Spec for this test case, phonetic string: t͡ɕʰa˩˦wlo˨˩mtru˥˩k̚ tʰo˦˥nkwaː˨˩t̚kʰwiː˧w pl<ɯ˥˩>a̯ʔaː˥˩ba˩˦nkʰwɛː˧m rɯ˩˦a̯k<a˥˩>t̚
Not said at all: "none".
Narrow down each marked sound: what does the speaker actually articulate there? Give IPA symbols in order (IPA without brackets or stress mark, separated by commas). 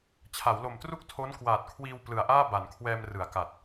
ɯ˨˩, a˨˩